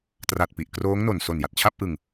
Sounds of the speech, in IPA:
t r a˨˩ t̚ p i˨˩ ʔ k r oː˦˥ ŋ n o˨˩ n s o˨˩ n j a˨˩ t̚ t͡ɕʰ a˥˩ p̚ ʔ ɯ˧ ŋ

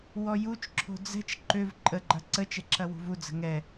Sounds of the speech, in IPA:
w ɔ j u t͡ʃ ǁʰ o̤ d͡z ɛ̤ t͡ʃ ǃ ø v ǃʼ ə ɡ͡ǃ ɐ ǀ ə t͡ʃ ɛ ǁ ɐ w ṳ v u d͡z ə̤ ŋ ɛ

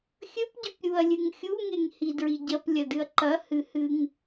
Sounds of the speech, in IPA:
xʲ ɵ p ɟ ɵ p ɾʲ u ɐ̯ lʲ ɨ ŋ xʲ u ŋ e ŋ h i d ɹ i ɟ ɐ p lʲ ɐ d ɨ ɐ̯ ǃ ɐ h ɨ h ɨ ŋ

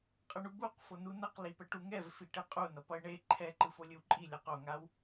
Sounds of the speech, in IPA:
qʼ ʌ ɳ u b u q f o n u n ʌ q l i p ɛ ʈ u ŋ ɛ v f i ʈ e qʼ u n ʌ p ʌ ɪ̯ ɳ e ǃʰ ɛ ǃ ɯ f o lʲ ɯ w ǃʼ i lʲ ʌ q o ŋ a w

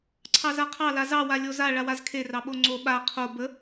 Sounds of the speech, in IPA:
ǀʰ ɑ z a qʰ ɑ l a z ɑ w a lʲ o z a ɭ a w a z kʰ e r ɑ ɓ o ŋ͡ǀ o ɓ a qʰ o b ə

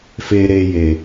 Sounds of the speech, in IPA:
f e˧ ɾ e˧ j e˨

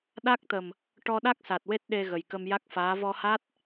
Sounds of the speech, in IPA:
ɗ a˦˥ k̚ t̪ ə˨˩ m | ʈ ɔ˧ ɗ a˦˥ k̚ s a˨˩ t̚ w e˦˥ t̚ ɗ e˧ ɣ ə˨˩ j k ə˧ m j a˦˥ k̚ f aː˧˥ v ɔ˧ h a˦˥ t̚

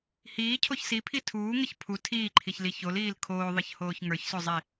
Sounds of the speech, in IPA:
h iː cʰ o ç s i pʰ i tʰ uː ŋ ə ç pʰ u tʰ iː ǃʰ i ç l i ç o l iː l kʰ oː ðˤ ə ç h oː ç ŋ ə˞ ç s o zˤ i

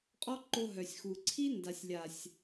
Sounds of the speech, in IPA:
qʼ ɔ˦ ǃ o˧ ɦ œ˨ sʲ x u˨ ǀʰ i˦ n d a˨ sʲ lʲ a˨ sʲ

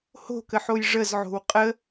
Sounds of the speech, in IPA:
h o̤ k ə ħ o j ʐ ə z ʕ o̤ w qʼ ə

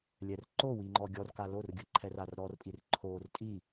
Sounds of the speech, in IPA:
lʲ ɛ r ǃ o w i ŋ͡ǃ ɔ ɡʲ ɔ r k a l o r ɡʲ ɯ ǃʰ ɛ r a r ɾ ɔ r pʼ i r ǃʰ o r tʼ i

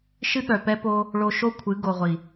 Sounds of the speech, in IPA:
ʃ ɨ˦ ɠ œ˨ p ɛ˦ p o˦ | ɭ o˧ ʃ o˦ kʷʰ ɨ˨˦ ɡ o˨ ʁʷ i˨

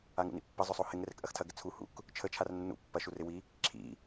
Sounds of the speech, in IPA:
a ŋ ṵ n ḭ pː ə zˤ ʏ sˤ o h ɪ ŋ r ɛ k ʔ ɐ x tʰ ɐ ɡ ɪ t͡sʰ u h ṵ k | t͡ʃʰ ə t͡ʃʰ a r nː ṵ pː ɐ ʃ u r ɪ w i | ǁʰ ḭ

